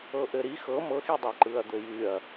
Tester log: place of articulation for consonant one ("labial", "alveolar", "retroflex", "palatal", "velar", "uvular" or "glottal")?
glottal